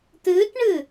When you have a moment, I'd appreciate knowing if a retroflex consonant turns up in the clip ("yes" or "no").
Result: yes